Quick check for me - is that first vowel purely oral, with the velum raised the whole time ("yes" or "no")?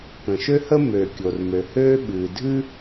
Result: no